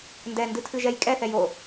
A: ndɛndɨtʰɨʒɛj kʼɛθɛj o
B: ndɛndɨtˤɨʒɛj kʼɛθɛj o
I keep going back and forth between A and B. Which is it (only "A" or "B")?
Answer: A